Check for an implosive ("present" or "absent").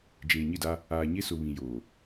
absent